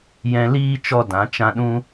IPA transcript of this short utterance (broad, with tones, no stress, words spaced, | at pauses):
jɛ̃˧liː˦ t͡ʃɔ˦dã˨˦t͡ʃã˦ ɗũ˦